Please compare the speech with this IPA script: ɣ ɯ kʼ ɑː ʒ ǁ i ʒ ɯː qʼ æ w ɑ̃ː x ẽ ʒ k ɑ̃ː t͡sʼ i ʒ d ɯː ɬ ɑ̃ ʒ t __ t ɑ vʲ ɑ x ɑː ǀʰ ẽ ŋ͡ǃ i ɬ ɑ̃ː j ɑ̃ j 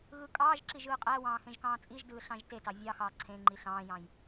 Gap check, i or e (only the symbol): e